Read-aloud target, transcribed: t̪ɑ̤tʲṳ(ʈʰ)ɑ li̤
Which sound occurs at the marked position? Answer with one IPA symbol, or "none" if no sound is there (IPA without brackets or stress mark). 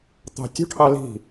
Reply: ʈʰ